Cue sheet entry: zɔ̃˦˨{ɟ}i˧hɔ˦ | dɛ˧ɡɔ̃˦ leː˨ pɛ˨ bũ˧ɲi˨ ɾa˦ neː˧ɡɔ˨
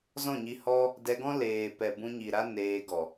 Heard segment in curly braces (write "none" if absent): ɲ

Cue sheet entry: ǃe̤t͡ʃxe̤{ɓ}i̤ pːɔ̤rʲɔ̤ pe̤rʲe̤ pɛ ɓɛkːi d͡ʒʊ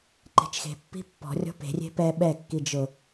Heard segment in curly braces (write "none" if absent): pː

